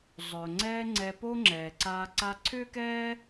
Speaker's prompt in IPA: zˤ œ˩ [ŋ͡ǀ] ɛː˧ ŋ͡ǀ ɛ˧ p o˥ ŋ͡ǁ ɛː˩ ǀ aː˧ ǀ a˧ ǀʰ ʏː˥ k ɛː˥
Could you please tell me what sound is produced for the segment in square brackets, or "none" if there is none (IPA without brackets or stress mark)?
ŋ͡ǀ